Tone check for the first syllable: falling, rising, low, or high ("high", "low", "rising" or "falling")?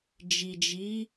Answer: low